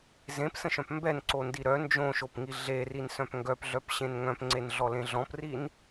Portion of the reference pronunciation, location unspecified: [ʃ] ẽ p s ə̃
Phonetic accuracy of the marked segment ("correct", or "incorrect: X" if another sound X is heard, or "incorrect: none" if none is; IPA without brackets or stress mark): incorrect: z